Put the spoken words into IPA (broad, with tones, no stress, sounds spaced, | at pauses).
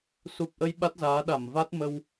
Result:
s u˨˩ p̚ ʔ ə˧ j ɓ a˦˥ t̚ z aː˨˦ ɗ a˧˩ m v a˦˥ t̚ m ə˧ w